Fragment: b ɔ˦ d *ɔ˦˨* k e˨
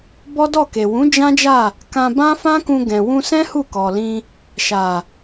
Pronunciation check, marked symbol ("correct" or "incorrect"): correct